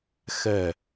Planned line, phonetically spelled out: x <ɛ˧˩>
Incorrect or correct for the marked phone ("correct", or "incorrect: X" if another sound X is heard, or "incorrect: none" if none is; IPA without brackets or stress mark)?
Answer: correct